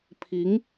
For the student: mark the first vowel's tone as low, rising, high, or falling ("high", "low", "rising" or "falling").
rising